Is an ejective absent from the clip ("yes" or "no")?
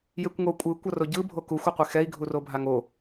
no